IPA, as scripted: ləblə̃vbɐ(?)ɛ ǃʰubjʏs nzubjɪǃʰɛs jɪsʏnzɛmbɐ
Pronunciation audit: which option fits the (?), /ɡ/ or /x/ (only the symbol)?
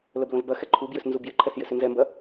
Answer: x